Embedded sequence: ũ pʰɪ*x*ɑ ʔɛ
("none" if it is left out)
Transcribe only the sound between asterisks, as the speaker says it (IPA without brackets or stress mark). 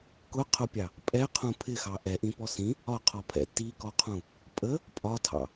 x